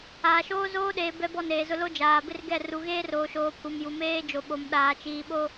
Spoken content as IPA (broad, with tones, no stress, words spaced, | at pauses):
aː˨ʃoː˦zoː˦ɗeː˨ bɛ˦bɔ˦˨neː˨zʊ˦ lo˦d͡ʒaː˨bɪ˦rɡɛ˦˨ ru˨ɣeː˦roː˨ʃoː˨ pʰu˨m ju˨meː˦ d͡ʒo˨ɓo˨m ɗaː˨t͡ʃiː˨ɓo˦